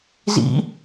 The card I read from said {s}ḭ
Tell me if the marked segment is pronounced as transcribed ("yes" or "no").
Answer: no